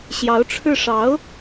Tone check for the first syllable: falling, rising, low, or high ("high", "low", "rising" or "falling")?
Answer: rising